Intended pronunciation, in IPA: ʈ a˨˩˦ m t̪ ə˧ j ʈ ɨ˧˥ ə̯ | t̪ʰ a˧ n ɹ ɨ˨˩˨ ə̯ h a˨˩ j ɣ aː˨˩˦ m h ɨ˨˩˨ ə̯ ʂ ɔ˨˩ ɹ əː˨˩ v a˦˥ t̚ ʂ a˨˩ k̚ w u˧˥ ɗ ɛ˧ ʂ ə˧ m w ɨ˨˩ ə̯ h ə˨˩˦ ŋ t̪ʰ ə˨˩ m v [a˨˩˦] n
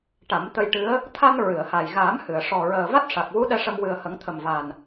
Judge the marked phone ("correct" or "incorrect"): incorrect